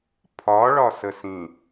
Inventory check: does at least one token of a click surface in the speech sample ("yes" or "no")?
no